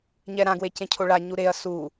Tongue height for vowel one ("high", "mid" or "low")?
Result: mid